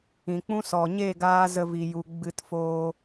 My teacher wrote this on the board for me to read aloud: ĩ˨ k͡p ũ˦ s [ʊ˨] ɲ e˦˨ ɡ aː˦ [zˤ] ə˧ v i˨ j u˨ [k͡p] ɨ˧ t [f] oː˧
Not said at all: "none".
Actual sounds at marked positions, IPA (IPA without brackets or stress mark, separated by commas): ɔ˨, z, ɡ͡b, f